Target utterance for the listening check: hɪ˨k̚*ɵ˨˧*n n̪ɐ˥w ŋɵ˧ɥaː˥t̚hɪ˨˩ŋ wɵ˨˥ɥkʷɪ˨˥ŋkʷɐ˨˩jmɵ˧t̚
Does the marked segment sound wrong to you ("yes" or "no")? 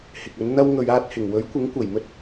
no